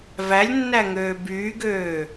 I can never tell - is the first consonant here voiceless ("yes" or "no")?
no